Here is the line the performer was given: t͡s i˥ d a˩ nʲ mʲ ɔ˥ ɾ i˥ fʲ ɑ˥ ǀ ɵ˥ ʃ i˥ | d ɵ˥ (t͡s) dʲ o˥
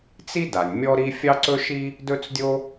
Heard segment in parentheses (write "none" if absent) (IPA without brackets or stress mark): t͡s